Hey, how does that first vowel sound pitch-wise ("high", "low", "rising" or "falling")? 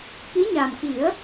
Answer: rising